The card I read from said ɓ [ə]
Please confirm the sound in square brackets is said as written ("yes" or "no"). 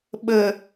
yes